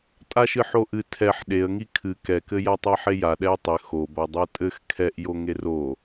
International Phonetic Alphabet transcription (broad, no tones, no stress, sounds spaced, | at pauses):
tʼ a ʃ ɨ ħ o ʔ ɨ tʰ ɛ ħ ɗ e ə̯ ŋ i kʰ ɨ k ɛ k ɘ j a tˤ a ħ e j a ɗ ɛ ɪ̯ tˤ ɘ x o b a dˤ o tʼ ɘ x kʰ ɛ ʔ j o ŋ e r o